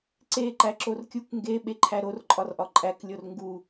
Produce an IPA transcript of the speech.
ǀ e ǃ æ ǁ o r kʲ u k ŋ ɡ e ɓ e ǃʰ æ ɾ o r ǃʼ ɒ r ʔ ɒ ǃʼ æ k lʲ o r ŋ ɡ u

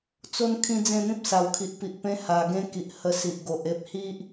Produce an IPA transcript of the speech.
t͡s o˧ n kʰ ĩ˧ d͡z ẽ˥˧ n̪ ĩ˦ p̚ s a˨˩ w kʰ i˨ ʔ p i˨ ʔ p ẽ˦ h a˨˩ ɡ ẽ˦ k i˨ ʔ h ə˧ s i˨ ʔ ɡ o˨ ʔ e˦ p̚ h i˦ ʔ

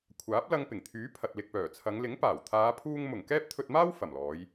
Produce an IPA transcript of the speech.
kʷʰ aː˨˥ p̚ l ɐ˧ ŋ p ɪ˨˩ ŋ t̪ʰ yː˨˥ pʰ ɐ˨ t̚ l ɪ˨ k̚ p œː˨˩ t͡sʰ ɐ˨˧ ŋ l ɪ˨˥ ŋ p aː˨˩ w t̪ʰ aː˨˧ pʰ uː˧ ŋ m ʊ˨˩ ŋ k ɛː˥ p̚ t̪ʰ ɵ˧ t̚ m aː˥ w f ɐ˨˩ m l ɔː˨˧ j

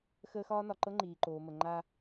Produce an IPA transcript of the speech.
x əː˦ x ɒː˦ n ɒ˨ ǃ ɤ˦ ŋ͡ǃ iː˨ ǃ oː˨ m ə˨ ŋ͡ǃ a˦

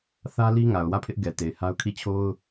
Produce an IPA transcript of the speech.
θ ä˦ l i˦ ŋ a˨ ʊ̯ w ä˦˨ pʰ ɪ˦ ʔ ɡ ɛ˨ t e˨ ɪ̯ h a˦ ʊ̯ kʰ i˦˨ t͡ɕʰ o˦ ʊ̯

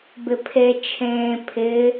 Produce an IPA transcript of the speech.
b ɪ pʰ e t͡ʃʰ ẽː pʰ ɪ

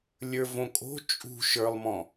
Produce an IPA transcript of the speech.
lʲ ə˞ v õ kʼ o̤ t͡ʃʼ ṳ ʃ ə˞ lˠ m ɔ̃

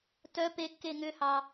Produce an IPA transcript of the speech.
t œ p e kː e ŋ ʏ h ɑ

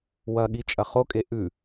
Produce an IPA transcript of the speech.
w ɐ ɠ i t͡ʃʼ ɐ χ o kʼ e ʔ ʉ

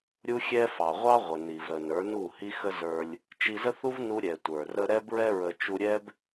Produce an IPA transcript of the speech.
ɾʲ u˦ xʲ ɛ˦ f ɑ˨ ʁʷ ɑ˦ ʁʷ ə˨ n i˨ v ɾ ə˨ n ə˞˨˦ n u˦˨ h i˦ x ə˦ z ə˞˧ lʲ | t͡ʃ i˧ z ə˦ θ u˦ v n u˦ ɾʲ ɛ˨ tʷ ə˞˨ r ə˧ ɾ ɛ˧ b ɹ ɛ˧ ɹ ə˨ t͡ʃ u˧ ɾʲ ɛ˦ b

